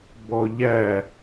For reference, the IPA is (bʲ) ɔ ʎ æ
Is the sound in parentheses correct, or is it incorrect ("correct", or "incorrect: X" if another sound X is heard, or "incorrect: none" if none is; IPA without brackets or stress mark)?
incorrect: b